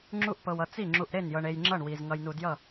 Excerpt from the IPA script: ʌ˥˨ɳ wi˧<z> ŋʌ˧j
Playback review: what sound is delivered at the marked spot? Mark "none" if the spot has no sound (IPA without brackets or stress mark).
z